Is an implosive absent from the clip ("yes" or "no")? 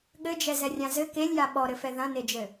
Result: no